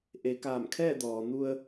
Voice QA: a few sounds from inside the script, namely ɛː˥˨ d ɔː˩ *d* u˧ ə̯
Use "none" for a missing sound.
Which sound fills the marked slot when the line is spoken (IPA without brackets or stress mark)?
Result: n